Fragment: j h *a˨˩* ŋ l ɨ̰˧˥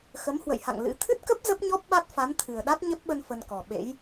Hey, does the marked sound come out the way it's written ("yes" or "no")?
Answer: no